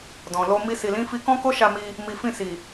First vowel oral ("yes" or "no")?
no